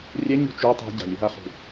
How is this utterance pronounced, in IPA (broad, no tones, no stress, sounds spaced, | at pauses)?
rʲ ɛ ɲ ṳ t͡ʃ u tˤ ɛ̤ ɟ a̤ lʲ ɯ ɦ a χ ṳ